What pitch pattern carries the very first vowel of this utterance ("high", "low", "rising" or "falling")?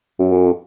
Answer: low